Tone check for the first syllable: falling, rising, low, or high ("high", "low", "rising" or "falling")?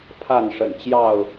falling